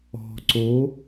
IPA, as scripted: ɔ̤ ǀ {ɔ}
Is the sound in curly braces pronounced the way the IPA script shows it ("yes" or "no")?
no